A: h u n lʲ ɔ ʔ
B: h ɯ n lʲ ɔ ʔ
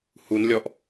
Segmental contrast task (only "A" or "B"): A